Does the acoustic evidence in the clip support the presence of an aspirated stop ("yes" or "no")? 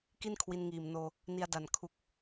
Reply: yes